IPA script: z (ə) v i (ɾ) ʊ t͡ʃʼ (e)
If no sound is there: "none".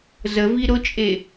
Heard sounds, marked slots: ə, ɾ, e

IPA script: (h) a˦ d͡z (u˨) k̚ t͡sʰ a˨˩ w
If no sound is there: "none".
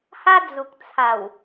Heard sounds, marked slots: h, u˨

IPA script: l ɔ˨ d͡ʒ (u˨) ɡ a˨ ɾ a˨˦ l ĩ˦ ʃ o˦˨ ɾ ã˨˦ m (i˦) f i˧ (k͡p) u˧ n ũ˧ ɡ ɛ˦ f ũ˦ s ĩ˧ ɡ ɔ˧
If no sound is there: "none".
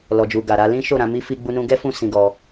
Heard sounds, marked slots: u˨, i˦, ɡ͡b

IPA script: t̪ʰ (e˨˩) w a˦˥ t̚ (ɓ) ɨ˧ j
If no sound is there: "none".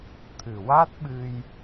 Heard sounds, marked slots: ɨ˨˩, ɓ

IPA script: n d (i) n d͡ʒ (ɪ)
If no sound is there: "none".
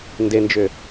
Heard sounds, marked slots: e, ʏ

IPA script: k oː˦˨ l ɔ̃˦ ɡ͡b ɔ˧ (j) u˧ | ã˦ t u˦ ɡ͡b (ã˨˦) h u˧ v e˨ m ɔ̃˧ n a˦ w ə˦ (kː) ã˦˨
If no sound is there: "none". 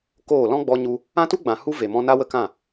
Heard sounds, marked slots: ɲ, ã˨, k

